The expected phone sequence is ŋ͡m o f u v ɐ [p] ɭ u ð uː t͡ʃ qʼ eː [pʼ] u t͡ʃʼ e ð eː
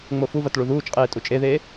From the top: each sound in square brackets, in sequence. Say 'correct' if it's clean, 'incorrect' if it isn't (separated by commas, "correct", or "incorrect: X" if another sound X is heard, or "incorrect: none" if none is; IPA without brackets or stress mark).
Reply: incorrect: t, incorrect: tʼ